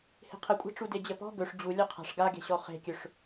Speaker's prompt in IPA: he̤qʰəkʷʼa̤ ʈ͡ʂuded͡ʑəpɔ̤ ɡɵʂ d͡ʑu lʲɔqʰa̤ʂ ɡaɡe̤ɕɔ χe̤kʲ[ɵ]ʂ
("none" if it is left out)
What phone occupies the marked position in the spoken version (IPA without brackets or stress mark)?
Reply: ɵ